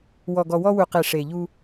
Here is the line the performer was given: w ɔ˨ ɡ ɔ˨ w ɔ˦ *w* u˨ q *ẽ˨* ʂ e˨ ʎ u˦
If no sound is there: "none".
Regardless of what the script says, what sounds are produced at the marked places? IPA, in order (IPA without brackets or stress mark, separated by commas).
w, e˨